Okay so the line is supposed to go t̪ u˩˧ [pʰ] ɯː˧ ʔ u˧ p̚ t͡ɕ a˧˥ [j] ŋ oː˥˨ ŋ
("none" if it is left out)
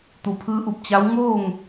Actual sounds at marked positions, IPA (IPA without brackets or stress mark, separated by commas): pʰ, w